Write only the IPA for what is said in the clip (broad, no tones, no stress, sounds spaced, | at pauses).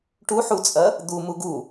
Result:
ʈ u ħ u t͡sʼ ɐ | d̪ u m u ɡ u